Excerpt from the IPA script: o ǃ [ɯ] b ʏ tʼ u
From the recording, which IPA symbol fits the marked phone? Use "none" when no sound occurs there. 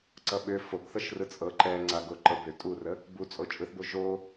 ɤ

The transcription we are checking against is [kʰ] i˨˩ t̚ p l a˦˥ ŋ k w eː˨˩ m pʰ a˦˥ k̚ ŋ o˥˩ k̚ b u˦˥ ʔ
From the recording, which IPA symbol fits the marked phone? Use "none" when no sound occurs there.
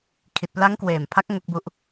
kʰ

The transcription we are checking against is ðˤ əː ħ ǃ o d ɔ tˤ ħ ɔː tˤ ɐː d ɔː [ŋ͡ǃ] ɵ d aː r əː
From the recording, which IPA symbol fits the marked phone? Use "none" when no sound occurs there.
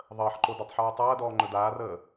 ŋ͡ǃ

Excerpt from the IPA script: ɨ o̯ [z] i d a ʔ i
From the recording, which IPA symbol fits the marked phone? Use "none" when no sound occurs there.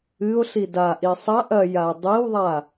ɬ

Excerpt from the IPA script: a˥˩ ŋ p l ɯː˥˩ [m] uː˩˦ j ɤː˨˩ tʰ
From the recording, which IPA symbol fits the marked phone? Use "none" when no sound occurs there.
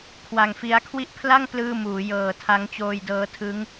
m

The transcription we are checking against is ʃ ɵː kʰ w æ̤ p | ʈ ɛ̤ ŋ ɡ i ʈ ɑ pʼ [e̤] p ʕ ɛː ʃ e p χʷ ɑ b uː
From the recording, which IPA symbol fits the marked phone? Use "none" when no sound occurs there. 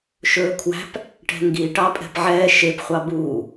ɛ̤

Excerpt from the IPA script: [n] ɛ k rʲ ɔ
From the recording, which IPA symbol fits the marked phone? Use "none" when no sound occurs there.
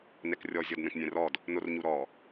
n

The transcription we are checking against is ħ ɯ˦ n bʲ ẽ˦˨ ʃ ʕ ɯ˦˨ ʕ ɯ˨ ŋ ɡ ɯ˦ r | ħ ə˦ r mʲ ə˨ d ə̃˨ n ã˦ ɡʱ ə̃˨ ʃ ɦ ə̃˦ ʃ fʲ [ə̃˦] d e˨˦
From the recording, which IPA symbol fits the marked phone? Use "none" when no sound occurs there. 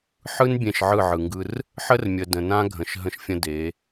ə̃˦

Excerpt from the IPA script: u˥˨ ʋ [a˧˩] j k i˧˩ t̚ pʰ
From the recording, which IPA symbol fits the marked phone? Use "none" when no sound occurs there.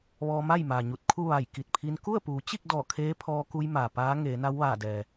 a˧˩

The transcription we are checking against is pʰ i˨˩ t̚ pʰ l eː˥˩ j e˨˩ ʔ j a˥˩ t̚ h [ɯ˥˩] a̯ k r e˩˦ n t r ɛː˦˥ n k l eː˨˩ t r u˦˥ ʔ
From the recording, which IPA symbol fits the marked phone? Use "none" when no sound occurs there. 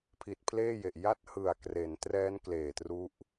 ɯ˨˩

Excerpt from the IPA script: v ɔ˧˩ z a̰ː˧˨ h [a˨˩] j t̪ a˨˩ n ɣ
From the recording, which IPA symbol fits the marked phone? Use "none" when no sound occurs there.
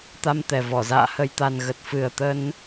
ə˨˩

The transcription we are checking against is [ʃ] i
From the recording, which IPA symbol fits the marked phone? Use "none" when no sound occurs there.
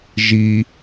ʒ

